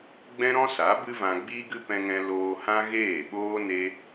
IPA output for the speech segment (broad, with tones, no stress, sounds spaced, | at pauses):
ɡ͡b ɛ̃˦ ɾ ɔ̃˦ s a˨˦ b ɨ˦ v ã˧ ɡ͡b iː˦ ɡ ɨ˦ p ɛ̃˧ ŋ ɛ̃˧ l oː˧ h ã˦ ɣ eː˦˨ ɓ oː˦ n e˦